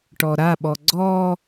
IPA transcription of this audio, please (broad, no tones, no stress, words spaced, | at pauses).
ʈɔɾaɓɔ ɡ͡ǀɔ